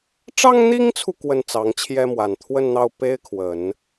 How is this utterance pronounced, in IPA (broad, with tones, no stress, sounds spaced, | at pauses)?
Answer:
ʈ͡ʂ ɑ˥ ŋ n̪ i˥ ŋ t͡sʰ u˨ k w ə˥˩ n t͡s ɑ˧˥ ŋ t͡ɕʰ j ɛ˥ m w a˨˩ n t̪ʰ w ə˥˧ n n̪ ɑ˥˩ ʊ̯ p e˥ ɪ̯ kʰ w ə˨˩˦ n